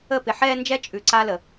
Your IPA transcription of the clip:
ə˦˨ p ɪ˨ ħ ɛː˦ n d͡ʒ ɛ˦ t͡ʃʼ ʉ˨ ǀ a˦ l ə˨

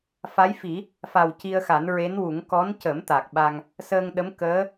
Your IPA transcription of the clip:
f a˧˥ j f i˨˩˦ | f a˨˩ w c i˧ ə̯ x a˨˩˦ n ɹ e˧˥ n w u˨˩˦ ŋ k ɔ˧˥ n c ə˨˩˦ m t̪ a˨˩ k̚ ɓ a˧ ŋ | s əː˧ ŋ ɗ ə˧˥ m k əː˧˥

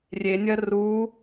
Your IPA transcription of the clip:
rʲ e nʲ ɐ r u

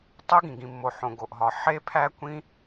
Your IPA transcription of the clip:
tˤ u˦˥ ɡ ĩ˩ ɡ ĩ˩ mː o˩ ħ õ˩ ɡ o˩ ʔ ɦ ɒ˩ ħ e˦˥ pʰ æ˦˥ kʷ ĩ˦˥

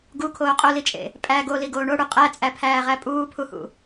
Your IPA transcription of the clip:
ɡ u kʰ oː qʼ o l i t͡ʃʼ ḛ | pʼ æ ɡ o l i ɡ oː ɳ o ɽ u qʼ æ t͡sʼ æ pʰ æː ʁ æ pʼ uː pʰ u h ṵ

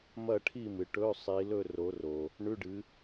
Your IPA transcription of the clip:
m ɐ˥˨ ʈʰ i˥˨ m ɨ˨ ʈ ɵ˧˥˧ sˤ i˨˦ l ɵ˥˨ r o˨˦ r o˨ | ɳ ʉ˧˥˧ ɖ ɨ˨˦

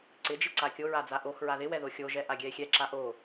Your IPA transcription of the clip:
ǀ ɪ d͡ʒ ɪ ǀ a kʲ o ɹ a d͡z a ʔ o x ɹ a ð ɪ w ɛ ð o xʲ o ʒ ɛ ʔ a ɡʲ ɛ e̯ xʲ ɛ ǁ a ʔ o

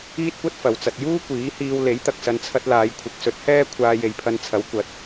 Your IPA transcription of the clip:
iː˥ t̚ kʷ ɐ˥ t̚ f ɐ˨ w t͡s ɐ˨ t̚ j uː˥ kʷ iː˨˥ h iː˧ w l e˨˥ j t̪ ɐ˨ k̚ s ɐ˨ n t͡sʰ ɐ˧ t̚ l aː˨˧ j kʷʰ ɪ˨˥ k̚ s ɵ˨˥ t̚ h ɛː˥ kʷʰ aː˧ j e˨˧ j pʰ ɐ˧ n t͡sʰ ɐ˨˥ w kʷ ɐ˨˥ t̚

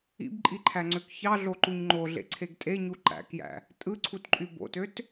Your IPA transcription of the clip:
ḭ b ǃʼ i ǃʰ æ ŋ͡ǀ ø k ç ɑ ɮ o ǃ u ɲ ŋ͡ǃ o ɮ ḛ ǀʰ e ɡ tʼ e ɲ u ǃ æ̰ k j æ̰ | tʼ ɯ ǀʰ u t ǃʼ y b o̰ t ø t

